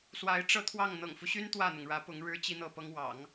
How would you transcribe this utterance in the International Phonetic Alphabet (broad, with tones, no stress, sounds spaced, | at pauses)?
s w a˧˥ ɪ̯ ʈ͡ʂ ɤ˥˧ t̪ʰ w ɑ˥˩ ŋ n̪ ɤ̰˨˩ ŋ f u˦ ɕ y˥ n t̪ w ä˥˩ n̪ ʊ˩ ŋ ɻ ä˧˥ p ʊ˧˥ ŋ ɻ ɻ̩˥ t͡ɕ i˥ n̪ ɤ˥˩ p ɤ˥ ŋ w ɑ̰˨˩˦ ŋ